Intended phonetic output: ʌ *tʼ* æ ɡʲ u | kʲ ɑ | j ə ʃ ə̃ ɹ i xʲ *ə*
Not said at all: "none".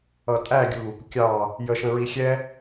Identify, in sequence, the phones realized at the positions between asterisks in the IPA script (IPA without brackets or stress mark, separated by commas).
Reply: tʼ, ɛ